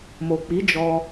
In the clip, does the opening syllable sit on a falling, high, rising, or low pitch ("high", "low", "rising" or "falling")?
low